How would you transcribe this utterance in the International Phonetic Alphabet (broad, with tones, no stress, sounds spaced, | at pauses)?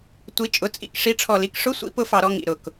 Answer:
tʷ i˨˦ t͡ʃʼ ʊ˨˦ t͡sʼ ḭ˦˨ k ʂ i˨˦ ʈ͡ʂʰ ɔ˨˩ l i˨˦ k ʂ ʊ˧˥˧ sʷ ḭ˦˥ p ʊ˦˨ f ɑ˧˩˧ ɾ ɔ˦˨ ŋ ḭ˨˩ ɾ ʊ˨˩ k